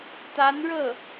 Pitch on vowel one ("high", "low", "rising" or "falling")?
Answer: rising